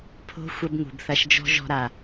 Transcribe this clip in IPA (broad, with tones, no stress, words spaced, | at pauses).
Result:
pʰo̤˦ xʷɐ˧b ŋṳ˨bθɐ˧ʃd͡ʒɔ̤˦ ʒɔ̤˧ɾa˨